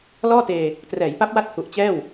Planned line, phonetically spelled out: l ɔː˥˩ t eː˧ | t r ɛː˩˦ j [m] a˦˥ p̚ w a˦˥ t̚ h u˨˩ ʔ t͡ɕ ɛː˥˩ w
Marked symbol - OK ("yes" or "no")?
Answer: no